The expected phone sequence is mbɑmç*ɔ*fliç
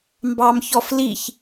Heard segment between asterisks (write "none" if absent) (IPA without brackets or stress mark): ɔ